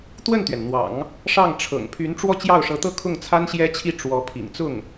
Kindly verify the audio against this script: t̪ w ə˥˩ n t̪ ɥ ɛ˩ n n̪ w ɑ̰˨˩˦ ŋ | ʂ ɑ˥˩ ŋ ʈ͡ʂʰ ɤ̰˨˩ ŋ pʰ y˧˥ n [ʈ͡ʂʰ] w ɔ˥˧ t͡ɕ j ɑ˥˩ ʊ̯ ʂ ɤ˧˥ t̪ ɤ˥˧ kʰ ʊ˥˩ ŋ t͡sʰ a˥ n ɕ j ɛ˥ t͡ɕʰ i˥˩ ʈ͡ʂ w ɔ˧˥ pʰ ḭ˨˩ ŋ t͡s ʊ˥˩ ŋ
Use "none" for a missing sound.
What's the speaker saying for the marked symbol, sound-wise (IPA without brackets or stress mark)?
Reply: ʈ͡ʂ